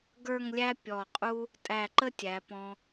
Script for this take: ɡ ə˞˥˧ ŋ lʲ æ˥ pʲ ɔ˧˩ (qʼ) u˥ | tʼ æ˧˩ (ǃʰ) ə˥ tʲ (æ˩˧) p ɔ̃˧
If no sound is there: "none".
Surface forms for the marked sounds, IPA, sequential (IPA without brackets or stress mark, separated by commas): qʼ, ǃ, æ˩˧